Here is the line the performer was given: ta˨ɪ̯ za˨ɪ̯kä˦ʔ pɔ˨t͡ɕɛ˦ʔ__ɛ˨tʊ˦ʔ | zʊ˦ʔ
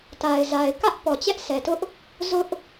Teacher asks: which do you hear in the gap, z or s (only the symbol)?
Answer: s